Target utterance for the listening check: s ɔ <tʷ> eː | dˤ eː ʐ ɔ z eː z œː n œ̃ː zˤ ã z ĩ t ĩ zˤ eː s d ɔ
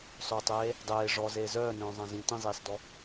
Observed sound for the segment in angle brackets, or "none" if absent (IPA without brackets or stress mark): tˤ